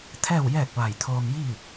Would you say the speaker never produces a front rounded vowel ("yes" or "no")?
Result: yes